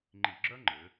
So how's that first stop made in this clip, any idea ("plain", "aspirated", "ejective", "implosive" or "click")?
click